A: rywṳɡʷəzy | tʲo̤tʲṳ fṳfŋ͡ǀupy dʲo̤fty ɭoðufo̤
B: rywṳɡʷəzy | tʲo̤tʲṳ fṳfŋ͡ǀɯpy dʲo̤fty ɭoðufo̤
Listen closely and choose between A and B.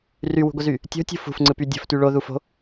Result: B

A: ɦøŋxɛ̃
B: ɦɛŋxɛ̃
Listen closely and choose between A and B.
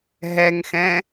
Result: B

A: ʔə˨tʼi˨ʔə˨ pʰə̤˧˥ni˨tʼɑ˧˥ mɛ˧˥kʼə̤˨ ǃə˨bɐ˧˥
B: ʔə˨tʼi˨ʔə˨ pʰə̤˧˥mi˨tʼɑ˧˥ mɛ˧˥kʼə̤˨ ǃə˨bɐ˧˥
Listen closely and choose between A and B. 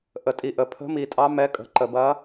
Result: B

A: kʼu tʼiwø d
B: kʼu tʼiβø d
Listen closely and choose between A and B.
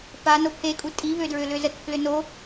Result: B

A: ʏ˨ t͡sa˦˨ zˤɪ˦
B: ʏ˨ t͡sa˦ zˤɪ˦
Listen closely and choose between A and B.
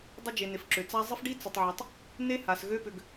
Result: B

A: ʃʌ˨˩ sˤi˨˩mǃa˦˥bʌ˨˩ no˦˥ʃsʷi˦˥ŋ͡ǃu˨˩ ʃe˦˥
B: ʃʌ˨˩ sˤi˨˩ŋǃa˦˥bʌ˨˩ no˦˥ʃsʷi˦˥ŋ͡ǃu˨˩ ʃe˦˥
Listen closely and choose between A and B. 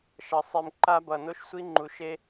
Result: A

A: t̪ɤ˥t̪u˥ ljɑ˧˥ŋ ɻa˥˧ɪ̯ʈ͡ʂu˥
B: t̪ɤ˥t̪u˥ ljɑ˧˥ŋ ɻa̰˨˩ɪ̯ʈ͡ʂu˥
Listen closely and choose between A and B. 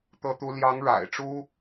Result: B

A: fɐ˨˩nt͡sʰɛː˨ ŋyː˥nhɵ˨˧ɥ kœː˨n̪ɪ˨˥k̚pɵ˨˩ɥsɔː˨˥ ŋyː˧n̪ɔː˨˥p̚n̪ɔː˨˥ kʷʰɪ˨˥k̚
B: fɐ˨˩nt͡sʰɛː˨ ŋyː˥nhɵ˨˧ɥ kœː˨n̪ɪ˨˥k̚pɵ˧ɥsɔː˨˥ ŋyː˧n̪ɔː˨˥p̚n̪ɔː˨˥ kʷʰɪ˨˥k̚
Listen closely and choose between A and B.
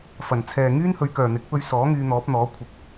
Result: B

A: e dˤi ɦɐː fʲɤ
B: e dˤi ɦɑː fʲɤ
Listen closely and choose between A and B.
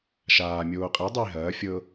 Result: A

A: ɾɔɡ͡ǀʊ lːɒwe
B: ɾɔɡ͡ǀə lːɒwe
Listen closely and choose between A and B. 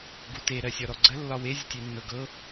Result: B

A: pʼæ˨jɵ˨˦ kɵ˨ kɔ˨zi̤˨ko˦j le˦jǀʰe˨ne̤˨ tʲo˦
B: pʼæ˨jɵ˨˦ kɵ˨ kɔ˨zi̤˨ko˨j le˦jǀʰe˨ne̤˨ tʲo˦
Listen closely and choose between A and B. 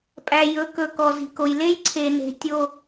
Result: B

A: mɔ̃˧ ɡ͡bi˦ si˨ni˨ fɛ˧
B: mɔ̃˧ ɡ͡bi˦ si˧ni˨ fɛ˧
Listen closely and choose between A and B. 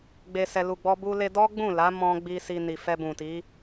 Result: B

